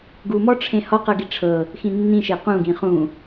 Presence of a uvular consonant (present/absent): present